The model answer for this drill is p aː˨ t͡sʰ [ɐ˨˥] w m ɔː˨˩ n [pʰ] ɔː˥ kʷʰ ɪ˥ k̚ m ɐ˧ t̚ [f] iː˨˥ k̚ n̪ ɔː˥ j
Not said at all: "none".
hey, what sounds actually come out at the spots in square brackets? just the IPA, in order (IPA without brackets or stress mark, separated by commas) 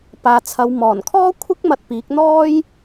ɐ˨˧, kʰ, p